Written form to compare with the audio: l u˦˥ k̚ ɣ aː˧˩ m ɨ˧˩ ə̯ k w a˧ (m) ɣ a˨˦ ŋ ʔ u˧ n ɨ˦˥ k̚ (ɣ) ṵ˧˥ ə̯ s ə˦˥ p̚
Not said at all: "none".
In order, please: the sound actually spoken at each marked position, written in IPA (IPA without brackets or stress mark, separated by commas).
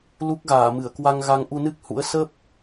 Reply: ŋ, h